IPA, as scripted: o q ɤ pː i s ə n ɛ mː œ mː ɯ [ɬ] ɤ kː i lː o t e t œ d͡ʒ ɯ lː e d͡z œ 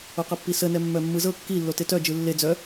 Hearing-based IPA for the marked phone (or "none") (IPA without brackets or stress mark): z